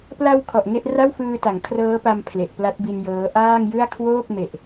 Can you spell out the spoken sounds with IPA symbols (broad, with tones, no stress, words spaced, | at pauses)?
pla˧w kʰɔ˨˩ʔŋe˥˩ʔ ra˥˩wfɯː˧ta˩˦ŋ kʰrɤː˦˥pa˧m pʰle˨˩ʔpla˦˥t̚bi˧njɤː˦˥ ʔaː˥˩ŋjɯ˥˩a̯ kʰwoː˥˩k̚me˨˩ʔ